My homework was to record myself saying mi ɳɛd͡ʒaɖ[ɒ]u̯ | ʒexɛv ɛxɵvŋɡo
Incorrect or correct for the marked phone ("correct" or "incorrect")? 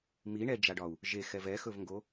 correct